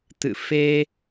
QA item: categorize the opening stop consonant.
plain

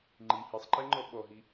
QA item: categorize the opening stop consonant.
click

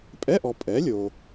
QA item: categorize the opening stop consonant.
ejective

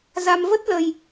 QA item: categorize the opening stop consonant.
plain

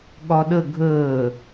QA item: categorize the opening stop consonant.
implosive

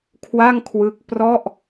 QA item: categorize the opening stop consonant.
aspirated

